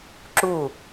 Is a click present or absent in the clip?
present